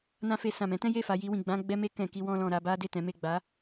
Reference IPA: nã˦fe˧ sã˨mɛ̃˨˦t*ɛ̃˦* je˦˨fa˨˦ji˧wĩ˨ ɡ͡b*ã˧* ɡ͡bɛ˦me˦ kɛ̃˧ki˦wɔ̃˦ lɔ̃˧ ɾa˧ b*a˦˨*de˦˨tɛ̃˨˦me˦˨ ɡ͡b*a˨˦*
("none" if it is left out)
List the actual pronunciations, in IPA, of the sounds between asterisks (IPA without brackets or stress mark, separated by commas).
ɛ̃˦, ã˧, a˦, a˨˦